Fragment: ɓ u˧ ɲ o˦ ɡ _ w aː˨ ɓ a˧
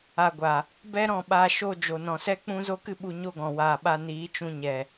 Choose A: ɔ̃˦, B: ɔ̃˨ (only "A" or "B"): B